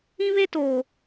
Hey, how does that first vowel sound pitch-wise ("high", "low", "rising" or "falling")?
high